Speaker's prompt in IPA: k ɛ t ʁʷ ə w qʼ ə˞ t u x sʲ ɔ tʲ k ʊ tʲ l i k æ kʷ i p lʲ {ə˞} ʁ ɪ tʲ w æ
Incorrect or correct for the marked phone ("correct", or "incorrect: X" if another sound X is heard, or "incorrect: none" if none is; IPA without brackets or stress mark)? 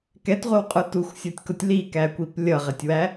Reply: incorrect: ʌ